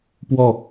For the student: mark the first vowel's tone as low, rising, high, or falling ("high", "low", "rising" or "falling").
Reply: falling